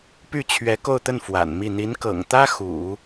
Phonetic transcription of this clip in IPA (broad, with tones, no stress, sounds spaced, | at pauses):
p y˥˩ t͡ɕʰ ɥ ɛ˧˥ k o˥˧ ʊ̯ t̪ ə˥˩ n f w a̰˨˩ n m i˥˩ n̪ i˧˥ n k ɤ̰˨˩ ŋ t̪ ä˥ x ṵ˨˩˦